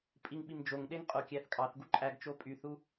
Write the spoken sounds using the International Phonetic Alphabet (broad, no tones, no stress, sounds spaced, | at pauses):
pʼ i ŋ ɓ i m d͡ʒ o ŋ ɗ e ŋ qʼ o kʲ æ θ kʼ ɑ θ ɡ u ǃʼ æ ɡ t͡ʃ o pʼ y θ u